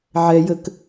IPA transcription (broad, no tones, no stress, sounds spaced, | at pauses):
ʕ ɛ j ə k